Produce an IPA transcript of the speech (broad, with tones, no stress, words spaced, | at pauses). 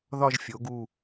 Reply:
ðɒ˥˧ʒfʲo˩˧ɡu˧˩